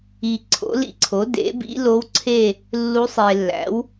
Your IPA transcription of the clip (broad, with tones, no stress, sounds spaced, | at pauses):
i˨ ǀʰ o̰˩˥ l ḭ˧˥ ǀʰ o˩˥ d ḛ˩˥ b ḭ˧˥ l o˧˥ w ǀʰ e˦˨ | lː u˧˥ sˤ e˨ lː æ̰˩˥ w